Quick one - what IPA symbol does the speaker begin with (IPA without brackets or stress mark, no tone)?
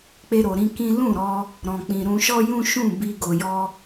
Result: k͡p